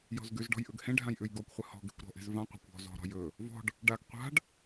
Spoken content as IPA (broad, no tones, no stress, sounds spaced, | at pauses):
j ɔ̤ z ɡ ʉ z ɖ ɔ̤ j ʔ ɵ ɡ h ẽ ɖʱ ã j ʔ ʉ j ɡ ɔ kʷ χʷ ɘ h ɔ̤ ɡ e̤ kʷ ɾ ɔ̤ ʔ e̤ z v ã qʷ a̤ kʷ ɔ̤ z ɔ̤ ɾ ɔ̤ j ɵ | v ɔ̤ ɖ | ɖ a ɡ qʷ a̤ ɖ